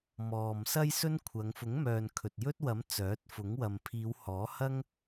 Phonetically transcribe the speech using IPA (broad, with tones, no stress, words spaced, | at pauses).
mɔː˨m sɐ˥jsɵ˥nkʷʰɐ˨˧ŋ fʊ˨˥ŋmœː˨n kʰɵ˨t̚jɵ˥t̚ wɐ˨˥m t͡sœː˨˥t̚ fʊ˨˥ŋwɐ˨m pʰiː˨˧whɔː˨˥hɐ˥ŋ